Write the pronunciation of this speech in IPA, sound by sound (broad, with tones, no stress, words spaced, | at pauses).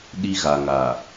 ɗi˦ɣa˨ ŋa˨